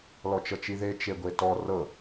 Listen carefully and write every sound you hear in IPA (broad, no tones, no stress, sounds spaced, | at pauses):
l ɔ t͡ʃ ɤ t͡ʃ i ð e t͡ʃ e ɡʷ e t ɔ r ɤ